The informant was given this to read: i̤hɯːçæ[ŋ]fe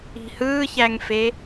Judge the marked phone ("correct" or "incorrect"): correct